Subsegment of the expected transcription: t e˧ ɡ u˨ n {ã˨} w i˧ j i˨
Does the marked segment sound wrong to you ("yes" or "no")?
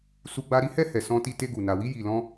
yes